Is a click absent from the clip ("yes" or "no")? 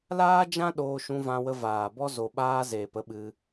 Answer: yes